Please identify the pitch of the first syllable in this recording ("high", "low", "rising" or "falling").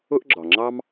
high